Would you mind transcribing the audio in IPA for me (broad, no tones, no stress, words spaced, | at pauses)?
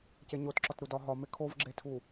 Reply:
ceɲotǁɒt ɾudɒɦɒme kʰovɡ͡ǁetʰu